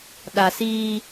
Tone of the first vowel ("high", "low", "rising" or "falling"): low